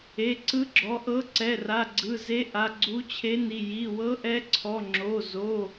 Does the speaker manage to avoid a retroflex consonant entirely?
yes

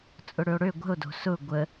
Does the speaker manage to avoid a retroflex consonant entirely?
no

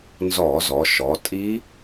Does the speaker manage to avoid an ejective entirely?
no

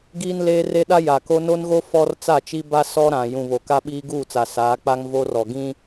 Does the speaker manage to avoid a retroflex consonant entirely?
yes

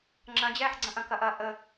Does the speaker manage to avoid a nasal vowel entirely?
no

